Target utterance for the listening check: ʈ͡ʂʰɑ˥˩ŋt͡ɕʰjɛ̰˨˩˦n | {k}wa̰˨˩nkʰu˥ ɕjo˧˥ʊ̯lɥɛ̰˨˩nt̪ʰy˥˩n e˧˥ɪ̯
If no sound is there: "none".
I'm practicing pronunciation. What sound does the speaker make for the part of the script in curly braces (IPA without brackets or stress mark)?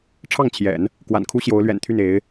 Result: k